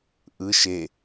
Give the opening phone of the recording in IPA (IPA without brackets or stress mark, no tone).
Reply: ʔ